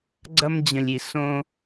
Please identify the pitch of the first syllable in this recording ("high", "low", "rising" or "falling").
high